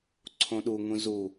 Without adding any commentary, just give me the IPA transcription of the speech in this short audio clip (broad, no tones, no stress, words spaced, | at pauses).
ǀʰõɗuŋũ zu